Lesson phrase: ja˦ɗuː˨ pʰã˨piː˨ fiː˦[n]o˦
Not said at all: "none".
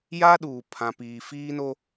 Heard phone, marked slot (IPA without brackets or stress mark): n